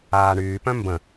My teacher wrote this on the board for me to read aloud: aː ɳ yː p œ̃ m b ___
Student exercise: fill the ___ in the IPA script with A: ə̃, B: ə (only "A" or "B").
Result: A